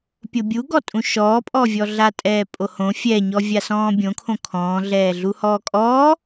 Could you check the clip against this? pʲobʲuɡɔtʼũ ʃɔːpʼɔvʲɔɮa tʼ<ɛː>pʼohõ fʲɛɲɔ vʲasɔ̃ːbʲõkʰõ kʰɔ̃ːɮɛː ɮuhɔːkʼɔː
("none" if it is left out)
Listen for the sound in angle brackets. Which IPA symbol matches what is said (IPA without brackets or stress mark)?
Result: ɛː